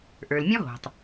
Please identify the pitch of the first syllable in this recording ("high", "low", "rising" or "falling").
low